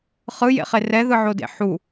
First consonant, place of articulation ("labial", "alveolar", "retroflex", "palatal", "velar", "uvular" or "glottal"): uvular